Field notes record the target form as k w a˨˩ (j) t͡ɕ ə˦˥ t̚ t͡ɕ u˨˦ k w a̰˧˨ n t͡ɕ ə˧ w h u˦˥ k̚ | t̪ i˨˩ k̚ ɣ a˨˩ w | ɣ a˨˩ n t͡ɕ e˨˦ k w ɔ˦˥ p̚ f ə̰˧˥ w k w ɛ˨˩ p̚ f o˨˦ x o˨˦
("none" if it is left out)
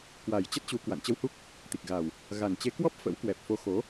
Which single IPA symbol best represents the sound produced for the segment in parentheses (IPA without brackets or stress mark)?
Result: j